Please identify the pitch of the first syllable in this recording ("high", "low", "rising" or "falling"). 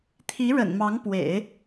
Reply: rising